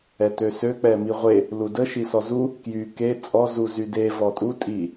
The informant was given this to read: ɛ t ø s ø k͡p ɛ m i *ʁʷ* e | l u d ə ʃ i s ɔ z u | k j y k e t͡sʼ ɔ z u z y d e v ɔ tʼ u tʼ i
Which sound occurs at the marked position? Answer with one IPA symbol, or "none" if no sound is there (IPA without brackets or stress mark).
ʁʷ